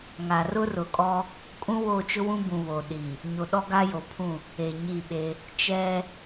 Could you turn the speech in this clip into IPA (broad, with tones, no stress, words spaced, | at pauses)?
ŋa˨ rʊ˦rʊ˨ kʼɔ˦ | kʼũ˦wo˦˨t͡ʃʊ˦ wũ˦bũ˨ βo˨ɗi˨ | ɲo˨ɗɔ˦ɡa˦ jo˨pʰũ˦˨ | e˨ɲi˦˨ɓe˦ | t͡ʃɛ˦